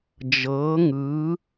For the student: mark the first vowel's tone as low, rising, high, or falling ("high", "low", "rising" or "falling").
rising